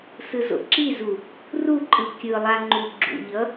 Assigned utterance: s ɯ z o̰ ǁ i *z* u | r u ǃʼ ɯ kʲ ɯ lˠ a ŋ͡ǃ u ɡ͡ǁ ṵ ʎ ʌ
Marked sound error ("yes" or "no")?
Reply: no